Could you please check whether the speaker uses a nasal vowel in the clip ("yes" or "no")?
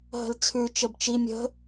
no